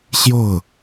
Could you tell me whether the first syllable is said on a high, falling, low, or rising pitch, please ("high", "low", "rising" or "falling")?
falling